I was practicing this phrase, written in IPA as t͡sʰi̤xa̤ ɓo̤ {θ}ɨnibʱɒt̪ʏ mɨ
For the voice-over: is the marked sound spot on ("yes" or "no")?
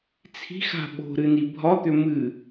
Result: no